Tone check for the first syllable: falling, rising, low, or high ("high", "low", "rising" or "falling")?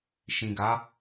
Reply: low